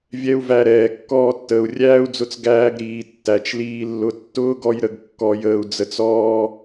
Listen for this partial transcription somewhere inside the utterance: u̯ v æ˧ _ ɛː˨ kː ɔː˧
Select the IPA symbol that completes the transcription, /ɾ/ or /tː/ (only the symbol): ɾ